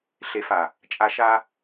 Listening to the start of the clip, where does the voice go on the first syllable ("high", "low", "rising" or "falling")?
low